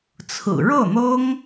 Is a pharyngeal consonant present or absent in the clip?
absent